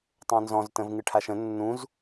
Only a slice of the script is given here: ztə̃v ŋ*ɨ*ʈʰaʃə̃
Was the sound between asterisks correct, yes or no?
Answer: yes